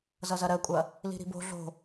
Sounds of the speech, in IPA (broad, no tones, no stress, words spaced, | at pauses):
zʌzɐɾɜkʷʼɐ | li̤ɾi̤bo̤ ɮo̤